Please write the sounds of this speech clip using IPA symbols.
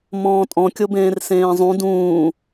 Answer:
mɔ̃ːtʼɔ̃ kʲobẽːrsẽːzˤũ dũː

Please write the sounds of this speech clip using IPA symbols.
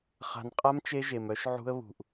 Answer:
χa̤˨nqʼa˦m t͡ʃe˦ʒe˨mœ˦ʃ ʕṳ˦ə̯βṳ˨ʔ

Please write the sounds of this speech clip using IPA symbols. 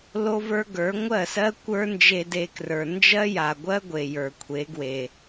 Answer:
lo˦və˞˦ɡə˞˨˦ ŋʷɜ˦˨sɜ˦ kʷə˞˦ nd͡ʒe˧de˧krə˞˨ nd͡ʒɜ˦ja˨ɡʷɜ˦ ɡʷe˨jə˞˨kʷʰe˨˦ɡwe˨

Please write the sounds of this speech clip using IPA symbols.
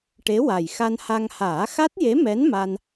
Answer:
ʈe˧˥wa˨˩jxa˧nha˧ŋ haː˨˩˦xa˦˥t̚je˧˥mɛ˧˥n ma˧n

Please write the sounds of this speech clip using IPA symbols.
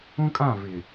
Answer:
ũ˦kʼã˦˨ vɪ˨

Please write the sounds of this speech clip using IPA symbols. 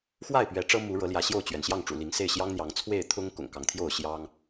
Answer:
xwa˥˨ɪ̯ pɥɛ˨˦ʈ͡ʂɤ˦mu˨˦ ɻɤ˨˦ljä˨˦ɕjo˥˨ʊ̯t͡ɕɥɛ˩n ɕjɑ˥˨ŋʈ͡ʂṵ˨˩li˨˦ŋse˥˨ɪ̯ ɕjɑ˦ŋn̪jɑ˨˦ŋ t͡sʰwe˥˨ɪ̯ t̪ʰʊ˦ŋ kʊ̰˨˩ŋkɑ˨˦ŋt̪ʰjo˥˨ʊ̯ ɕjɑ˦ŋ

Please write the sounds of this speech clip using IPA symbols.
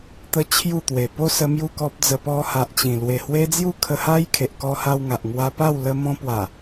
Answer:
t̪ə˦t͡ɕʰju˥˧t̪we˨˩ po˦sə˧ mju˥˧kɔ˦p̚d͡zə˧ pɔ˧ha˨ʔt͡ɕĩ˨˩ lwe˨˩hwe˦d͡zju˥˧ kʰə˧ha˦j kʰe˨ʔkɔ˧ha˧w ŋa˨ʔŋwa˧pa˥˧w lə˧mɔ̃˧pwa˨˩

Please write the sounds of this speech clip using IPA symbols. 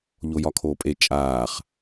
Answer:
ʎojɒkʰoːpʼe t͡ʃʼaːχ

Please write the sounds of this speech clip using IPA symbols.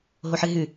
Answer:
ɦoħɨɦʉ

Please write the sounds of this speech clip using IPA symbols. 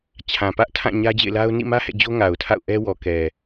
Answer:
t͡ɕʰã˨pä˦ʔtʰã˦˨ ɲä˦d͡ʑḛ˦˨ɪ̯la˦ʊ̯ nḭ˦˨mä˦ hɛ̰˦˨d͡ʑo˦ ŋa˨ʊ̯tʰa̰˦˨ʊ̯ʔɛ˦ wɔ˨ kɛ˨

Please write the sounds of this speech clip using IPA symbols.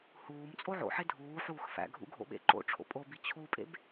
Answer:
huːm t͡sʼoʕo̰ħe dʱuːħuːx fæ̰ɡʱṵ ɡʱo̰ɓḛǃo̰ʈ͡ʂʰo̰ pʼobi t͡ɕʰupʼḛb

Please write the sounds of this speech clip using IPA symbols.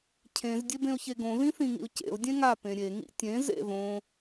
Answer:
cʰẽz dʲebẽʊ̯çeɡõ ðĩθĩŋḭʊ̯cḛʊ̯ dʲẽŋa pẽɾʲe ŋḭtʲẽz ḛðõ

